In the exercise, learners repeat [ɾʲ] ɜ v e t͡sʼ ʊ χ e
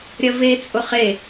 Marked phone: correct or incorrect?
correct